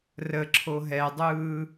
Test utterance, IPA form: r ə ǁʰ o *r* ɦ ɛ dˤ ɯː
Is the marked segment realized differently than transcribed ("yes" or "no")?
yes